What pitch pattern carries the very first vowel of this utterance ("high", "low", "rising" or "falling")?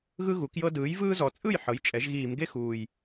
high